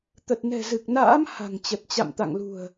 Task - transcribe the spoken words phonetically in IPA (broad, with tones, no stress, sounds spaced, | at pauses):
t̪ ə˨˩ t̚ n ɛ̤˨˩ z ɨ˨˩ k̚ n a̰ː˧˥ m h a̤˨˩ ŋ t͡ɕ ə˨˩ t̚ t͡ɕ a̰˧˨ m t̪ a̰˧˨ ŋ l ṳ˨˩ ə̯